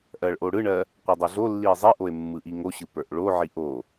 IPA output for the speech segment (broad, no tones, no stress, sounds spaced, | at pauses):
ʔ ɜ ɭ ʔ o ɽ ɯ ɳ ɜ | qʷ ə˞ dˤ ø ɮ o lː i e̯ zˤ i ʔ o e̯ mː ɯ ʔ i ŋ o ɕ ɯ p ə˞ ʔ ɭ o ʕ i ʔ o